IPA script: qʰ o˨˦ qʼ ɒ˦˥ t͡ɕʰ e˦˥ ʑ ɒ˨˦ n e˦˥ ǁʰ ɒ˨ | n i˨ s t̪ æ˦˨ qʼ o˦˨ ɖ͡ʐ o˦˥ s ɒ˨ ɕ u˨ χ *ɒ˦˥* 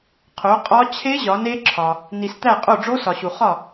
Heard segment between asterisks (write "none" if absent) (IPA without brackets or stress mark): ɒ˦˨